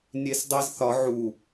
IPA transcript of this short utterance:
nʲesdˤezθɒ ʕu

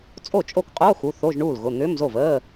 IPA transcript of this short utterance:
t͡sʼo˥˩t͡ʃʼo˥˩kqʼoː˧˥˧ xu˩˧˩ θo˧˥˧ʒɳuː˥˩lɣʊ˩˧˩ n̪ʏː˧˥˧mzo˥˩vəː˧˥˧

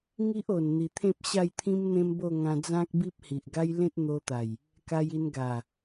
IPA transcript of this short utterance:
ŋi˦ʔo˨˩nn̪i˨˩t̪ʰẽ˦p̚ ɕa˥˧jt̪ʰĩ˦mn̪ẽ˦mbo˥˧ ŋã˧d͡zã˦k̚bi˦p̚ hi˨ʔɡa˦j lẽ˦t̚n̪o˧t̪a˨˩j | ka˧ji˧n ɡa˨˩

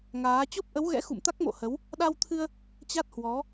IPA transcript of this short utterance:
ŋaː˨˦ t͡ɕo˦˥p̚ʔə˨˦wɣɛ̰˧˥xṵ˧˨m t̪a˦˥k̚mo̰˧˨hə˨˦w | ɗa˧wt̪ʰɨ˧ə̯ | t͡ɕa˦˥t̚hwɔ˨˦

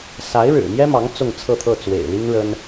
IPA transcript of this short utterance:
sa˧˥ɪ̯ɻɻ̩˨˩mjɛ˥mɑ˧˥ŋ t͡sʊ˥˧ŋt͡sʰɤ˥˧t̪ʰɤ˥˩ t͡swḛ˨˩ɪ̯li˥ŋɻə˥n

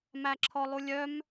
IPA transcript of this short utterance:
mæǁʰɔlˠulʲœm

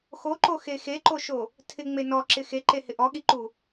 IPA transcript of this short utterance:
xoǃoxe xeǃoʃo | tʰɪŋ͡me nɔǁɪ xeǃehɪ ʔɔɠiǃu

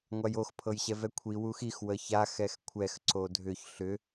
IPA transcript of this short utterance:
ŋʷajox pʰɤjɕɛvɛkʷʰi wuxix wəça xɛxkʷʰɛx ǀodʱʏç ɬʏ

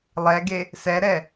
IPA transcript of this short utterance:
lˠɛɡe | sɛɾɛ

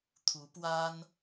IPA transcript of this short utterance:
t̪ʰu˧˥pwa˥n

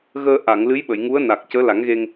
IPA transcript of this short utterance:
ɣəː˧ʔa˨˩˨ŋlɨ˧˥j ɓə˨˩˨jŋu˧˥ə̯na˨˩k̚ cəː˧˥la˨˩˦ŋɣe˧ŋ

